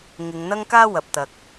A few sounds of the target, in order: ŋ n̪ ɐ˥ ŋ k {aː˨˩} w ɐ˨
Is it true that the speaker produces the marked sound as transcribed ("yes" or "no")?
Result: no